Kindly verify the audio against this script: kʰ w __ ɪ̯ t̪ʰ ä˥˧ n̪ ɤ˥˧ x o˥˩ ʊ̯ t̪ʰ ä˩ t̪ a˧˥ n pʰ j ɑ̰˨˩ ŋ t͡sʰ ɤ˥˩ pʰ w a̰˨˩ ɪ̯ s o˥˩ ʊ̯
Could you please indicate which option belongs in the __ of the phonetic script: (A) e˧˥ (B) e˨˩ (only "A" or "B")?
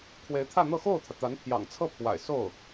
A